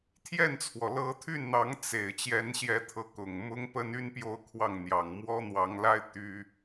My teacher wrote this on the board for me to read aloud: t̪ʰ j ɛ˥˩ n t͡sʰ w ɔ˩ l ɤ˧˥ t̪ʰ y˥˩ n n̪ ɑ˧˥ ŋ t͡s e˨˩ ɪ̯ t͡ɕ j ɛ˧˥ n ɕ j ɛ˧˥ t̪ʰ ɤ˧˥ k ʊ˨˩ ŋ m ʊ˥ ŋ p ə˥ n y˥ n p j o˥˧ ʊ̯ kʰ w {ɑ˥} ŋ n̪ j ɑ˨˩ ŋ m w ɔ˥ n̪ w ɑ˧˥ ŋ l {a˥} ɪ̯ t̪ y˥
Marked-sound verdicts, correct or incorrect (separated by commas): incorrect, correct